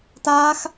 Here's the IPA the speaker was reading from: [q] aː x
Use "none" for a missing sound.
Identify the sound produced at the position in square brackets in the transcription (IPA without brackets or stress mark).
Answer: t